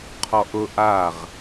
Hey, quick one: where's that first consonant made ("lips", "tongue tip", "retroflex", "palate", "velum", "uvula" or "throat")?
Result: uvula